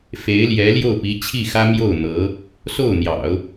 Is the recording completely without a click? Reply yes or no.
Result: yes